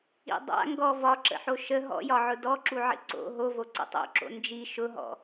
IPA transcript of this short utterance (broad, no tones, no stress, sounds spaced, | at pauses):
ḭ dˤ a̰ ŋ ɡ ɔ v ɒ ǁ ə̰ ħ o ʃ ə ɦ ɔ̰ j ɒ ʕ ʊ d ɔ ǁ u ʕ ḭ ǀ o̰ ɦ o v o ǀ ə̰ tˤ o̰ ǁ o̰ n d͡ʒ i ʃ ʊ ɦ ɔ̰